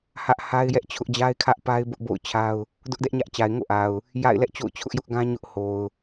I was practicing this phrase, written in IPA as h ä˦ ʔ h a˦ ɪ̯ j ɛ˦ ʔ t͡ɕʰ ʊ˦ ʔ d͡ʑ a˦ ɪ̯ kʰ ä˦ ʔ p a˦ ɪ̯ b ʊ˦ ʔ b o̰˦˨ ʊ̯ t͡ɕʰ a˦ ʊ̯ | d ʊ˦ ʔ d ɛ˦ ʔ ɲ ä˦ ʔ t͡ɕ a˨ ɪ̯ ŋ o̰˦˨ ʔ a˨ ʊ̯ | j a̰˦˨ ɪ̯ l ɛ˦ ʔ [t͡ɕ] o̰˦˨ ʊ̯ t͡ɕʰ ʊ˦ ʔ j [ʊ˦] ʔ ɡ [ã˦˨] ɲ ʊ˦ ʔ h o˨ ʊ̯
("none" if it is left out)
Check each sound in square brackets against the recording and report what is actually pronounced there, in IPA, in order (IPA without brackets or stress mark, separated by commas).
t͡ɕ, ʊ˦, ã˦